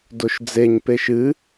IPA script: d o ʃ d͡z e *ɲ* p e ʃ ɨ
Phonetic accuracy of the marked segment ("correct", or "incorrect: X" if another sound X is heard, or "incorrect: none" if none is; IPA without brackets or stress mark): correct